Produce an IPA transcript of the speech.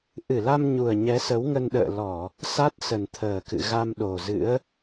ʔ ɨ˧˩ l a˧ m ɲ u˨˩ ə̯ ɲ ɛ˨˦ s ə˨˦ w ŋ ə˧ n ɗ ə̰ː˧˨ l ɔ˧˩˨ | s a˦˥ t̚ s ə˨˩ n t̪ʰ əː˨˩ k ɨ̰˧˨ ɣ a˧ m ɗ o˨˩ z ɨ̰˧˥ ə̯

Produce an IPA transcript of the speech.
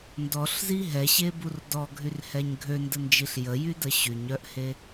n d ɔ ɬ z i ɦ ɛ ɕ e b u r d ɔ ɡʱ y r h ɛ ɲ ɡʱ ø n d ə n d͡ʒ i ɬ j ə j y d ə ɕ y ɲ œ ʔ h e

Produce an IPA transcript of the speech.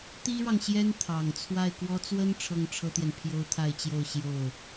t̪ i˥ ɻ ɑ˨ ŋ ɕ j ɛ˥ n t̪ʰ ɑ˨˩ ŋ t͡sʰ w a˥˩ ɪ̯ k w ɔ˥ t͡s w ə˥ n ʈ͡ʂʰ ɤ˥ ŋ ʈ͡ʂʰ ɤ˥ t̪ j ɛ˨ n pʰ j o˥ ʊ̯ t̪ʰ a˥˧ ɪ̯ t͡ɕ j o˥˧ ʊ̯ ɕ j o˥˩ ʊ̯

